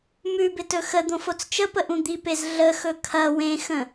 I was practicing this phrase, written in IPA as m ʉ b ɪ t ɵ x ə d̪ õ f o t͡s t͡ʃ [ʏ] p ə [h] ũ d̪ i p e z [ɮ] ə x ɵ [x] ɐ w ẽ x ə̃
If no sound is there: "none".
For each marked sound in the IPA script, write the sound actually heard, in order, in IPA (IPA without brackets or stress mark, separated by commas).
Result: ə, ʔ, ɮ, kʰ